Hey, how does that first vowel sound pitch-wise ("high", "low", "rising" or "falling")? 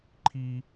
high